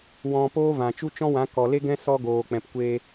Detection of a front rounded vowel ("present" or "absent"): absent